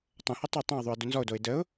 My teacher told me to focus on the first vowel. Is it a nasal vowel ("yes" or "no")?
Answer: yes